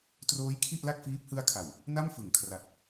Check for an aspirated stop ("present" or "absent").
present